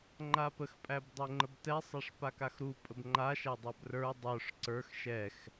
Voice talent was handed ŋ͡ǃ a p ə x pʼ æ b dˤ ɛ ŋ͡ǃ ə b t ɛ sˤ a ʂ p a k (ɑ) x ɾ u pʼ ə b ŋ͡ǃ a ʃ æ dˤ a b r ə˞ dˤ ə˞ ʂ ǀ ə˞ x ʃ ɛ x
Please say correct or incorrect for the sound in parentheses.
incorrect